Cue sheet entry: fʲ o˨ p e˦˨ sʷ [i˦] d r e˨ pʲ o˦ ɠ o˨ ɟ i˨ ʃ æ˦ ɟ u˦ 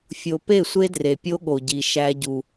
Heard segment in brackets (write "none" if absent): e˦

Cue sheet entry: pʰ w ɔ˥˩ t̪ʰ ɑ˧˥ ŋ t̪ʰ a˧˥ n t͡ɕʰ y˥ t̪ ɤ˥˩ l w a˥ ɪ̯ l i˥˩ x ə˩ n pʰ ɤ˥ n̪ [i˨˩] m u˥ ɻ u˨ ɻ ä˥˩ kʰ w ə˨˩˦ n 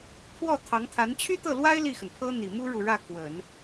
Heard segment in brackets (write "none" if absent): i˨˩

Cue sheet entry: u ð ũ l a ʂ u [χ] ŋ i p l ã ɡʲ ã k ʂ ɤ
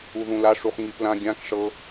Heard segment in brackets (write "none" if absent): χ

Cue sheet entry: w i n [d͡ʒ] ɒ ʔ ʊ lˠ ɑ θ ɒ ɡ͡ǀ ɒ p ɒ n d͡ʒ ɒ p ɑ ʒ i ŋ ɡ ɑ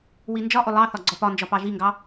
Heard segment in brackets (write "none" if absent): d͡ʒ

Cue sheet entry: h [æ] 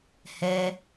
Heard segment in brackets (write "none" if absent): ɛ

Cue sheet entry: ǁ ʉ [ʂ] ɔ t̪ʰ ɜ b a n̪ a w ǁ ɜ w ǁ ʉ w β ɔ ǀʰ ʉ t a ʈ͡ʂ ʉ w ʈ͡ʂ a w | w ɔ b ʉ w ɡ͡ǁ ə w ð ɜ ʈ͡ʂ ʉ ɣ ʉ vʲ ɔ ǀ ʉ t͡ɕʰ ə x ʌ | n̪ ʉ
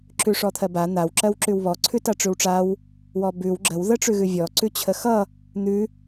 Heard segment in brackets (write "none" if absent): ʂ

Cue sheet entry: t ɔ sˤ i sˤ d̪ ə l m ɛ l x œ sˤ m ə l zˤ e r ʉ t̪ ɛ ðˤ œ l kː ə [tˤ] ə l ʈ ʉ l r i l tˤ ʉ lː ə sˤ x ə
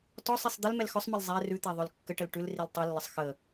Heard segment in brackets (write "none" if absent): ʈ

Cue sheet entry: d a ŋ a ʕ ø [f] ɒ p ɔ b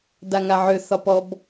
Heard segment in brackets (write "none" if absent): θ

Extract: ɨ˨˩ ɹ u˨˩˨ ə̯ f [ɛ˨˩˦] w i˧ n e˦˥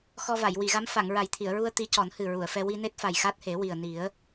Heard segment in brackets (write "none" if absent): ɛ˧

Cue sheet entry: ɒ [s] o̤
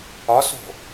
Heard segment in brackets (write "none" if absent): s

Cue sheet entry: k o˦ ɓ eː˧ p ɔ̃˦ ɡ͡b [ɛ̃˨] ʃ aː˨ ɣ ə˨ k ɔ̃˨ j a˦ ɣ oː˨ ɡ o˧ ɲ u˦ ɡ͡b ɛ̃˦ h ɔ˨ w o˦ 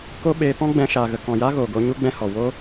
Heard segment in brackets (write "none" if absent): ɛ̃˧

